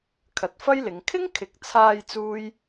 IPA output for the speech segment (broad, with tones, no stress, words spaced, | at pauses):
kʰɐ˨˥t̚fɐ˥jlɪ˨˧ŋ kʰɪ˥ŋkʰɪ˨k̚t͡sʰaː˧j t͡suː˥j